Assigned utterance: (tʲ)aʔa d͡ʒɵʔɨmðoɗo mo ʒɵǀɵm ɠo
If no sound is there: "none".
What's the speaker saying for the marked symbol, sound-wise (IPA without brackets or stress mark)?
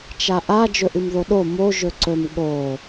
t͡ʃ